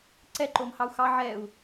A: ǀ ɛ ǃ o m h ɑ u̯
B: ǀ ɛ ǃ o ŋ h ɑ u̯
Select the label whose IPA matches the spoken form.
A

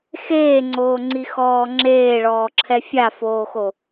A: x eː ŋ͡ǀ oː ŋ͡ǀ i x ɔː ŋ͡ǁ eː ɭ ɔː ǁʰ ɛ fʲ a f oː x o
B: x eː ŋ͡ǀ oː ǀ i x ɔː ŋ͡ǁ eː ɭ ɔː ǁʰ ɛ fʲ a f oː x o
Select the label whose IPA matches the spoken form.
A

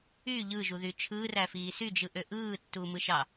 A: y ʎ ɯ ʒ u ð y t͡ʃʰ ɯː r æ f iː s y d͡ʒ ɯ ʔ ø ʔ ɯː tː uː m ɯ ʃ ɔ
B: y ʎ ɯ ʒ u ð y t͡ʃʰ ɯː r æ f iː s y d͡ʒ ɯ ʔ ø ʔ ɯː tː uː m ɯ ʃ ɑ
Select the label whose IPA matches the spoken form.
B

